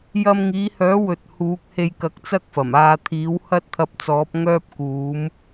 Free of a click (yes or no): yes